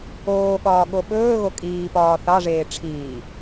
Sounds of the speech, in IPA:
oː ɠ ɒː ɠ o ɓ ɵː ɣ o kʼ iː p ɒː θ ɑ ʐ eː ʈ͡ʂʰ iː

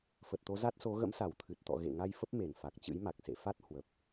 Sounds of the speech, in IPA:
f ə˨˩ t̚ t̪ o˨˦ z a˦˥ t̚ s o˨˦ ɣ ə̰˧˥ m s a˧˩ w t̪ʰ ɨ˨˩ t̚ t̪ ɔ̰˧˨ ɣ ḛ˧˨ ŋ a˧ j f ə˦˥ p̚ m e˧˩ n f a˨˩ k̚ t͡ɕ ɨ̰˧˥ j m a˨˩ k̚ s ḛ˧˨ f a˦˥ t̚ h w ə˨˩ p̚

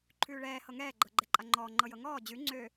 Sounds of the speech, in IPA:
ǃʰ ʉː ɭ ɛː h ɤ ŋ ɛː ɡ͡ǃ ɤ ɡ͡ǃ ɛ ǃʼ a ŋ͡ǃ ɔː ŋ͡ǃ ɤ j ɤ ŋ ɔː d͡ʑ ʉ ŋ͡ǀ ø

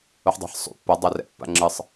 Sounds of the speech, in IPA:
u ħ dˤ a̤ ħ sˤ ṵ pː ɐ dˤ a r ɛ̰ pː a̰ ŋ͡ǁ ɨ sˤ

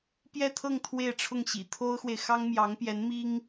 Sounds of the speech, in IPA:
p j ɛ˥˧ t̪ʰ ɤ˥˧ ŋ t̪ʰ w e˥˧ ɪ̯ ʈ͡ʂʰ ʊ˥˩ ŋ ɕ ḭ˨˩ t̪ʰ o˥ ʊ̯ x w e˨ ɪ̯ x ɑ˥ ŋ m j ɑ˧˥ ŋ p j ɛ˧˥ n m i˥ ŋ

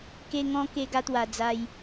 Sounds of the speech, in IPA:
k e˧ ŋ ɔ̃˧ k e˧ ɡ a˧ t̪ w a˨˩ d͡z a˧ j

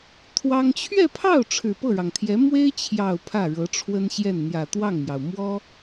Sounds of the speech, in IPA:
t̪ʰ w ɑ˥ ŋ t͡ɕʰ ɥ ɛ˥˧ pʰ ɑ˥˩ ʊ̯ ʈ͡ʂʰ ɻ̩˨˩ p ɤ˥˩ ɻ ɑ˩ ŋ t̪ʰ j ɛ˧˥ m w e˥ ɪ̯ t͡ɕʰ j ɑ˨˩ ʊ̯ pʰ ä˥˩ ɻ ɤ˧˥ ʈ͡ʂʰ w ə˥ n ɕ j ɛ˥˩ n n̪ j ä˨˩ t̪ w ɑ˥˩ ŋ m j ɑ˩ ʊ̯ m w ɔ˥

